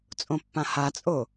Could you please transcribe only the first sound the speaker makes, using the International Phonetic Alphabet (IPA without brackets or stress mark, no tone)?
t͡sʼ